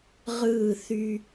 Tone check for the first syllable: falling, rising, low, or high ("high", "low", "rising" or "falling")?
falling